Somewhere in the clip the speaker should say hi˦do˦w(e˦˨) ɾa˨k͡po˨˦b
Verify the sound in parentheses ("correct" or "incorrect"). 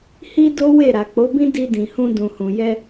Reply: correct